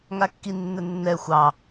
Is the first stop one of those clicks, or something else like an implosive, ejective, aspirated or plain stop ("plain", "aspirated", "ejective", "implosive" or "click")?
plain